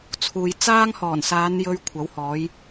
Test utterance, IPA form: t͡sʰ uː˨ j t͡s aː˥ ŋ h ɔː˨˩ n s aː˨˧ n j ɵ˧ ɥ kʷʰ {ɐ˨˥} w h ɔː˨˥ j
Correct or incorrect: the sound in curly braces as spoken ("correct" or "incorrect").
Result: correct